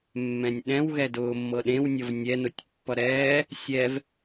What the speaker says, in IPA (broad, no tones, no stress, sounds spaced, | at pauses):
mː ɛ̃ nʲ ɗ ɛ̃ w ɣ ɛ d ʊː mː ɤ ɗ ẽ w nʲ ʌ v nʲ ɛ n ʊ tʲ pː ʌ ɾ ɛː | sʲ ɛ v